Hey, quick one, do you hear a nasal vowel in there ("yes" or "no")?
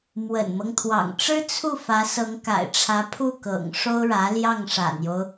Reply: no